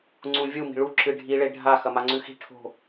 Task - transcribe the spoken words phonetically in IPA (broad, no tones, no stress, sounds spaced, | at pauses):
ŋ͡ǀ ũ vʲ u m i̤ ɭ u ǁ ɨ ɖʱ i ɭ e ɖʱ a x ɐ m a ŋ͡ǀ ʉ x i̤ ʈʰ o̤